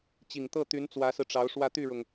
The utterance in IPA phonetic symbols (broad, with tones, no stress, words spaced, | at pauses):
t͡ɕi˨˩ŋ t̪ɤ˥˩ t̪y˧˥nt͡swä˧˥sɹ̩˧ʈ͡ʂɑ˧˥ʊ̯ ʂwä˥˧t̪y˥˩ɻʊ˩ŋ